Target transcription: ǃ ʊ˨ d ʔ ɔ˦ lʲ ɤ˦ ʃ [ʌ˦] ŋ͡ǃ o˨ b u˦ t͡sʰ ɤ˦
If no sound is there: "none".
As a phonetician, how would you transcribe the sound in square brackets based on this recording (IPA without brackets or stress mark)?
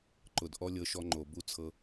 ɔ˦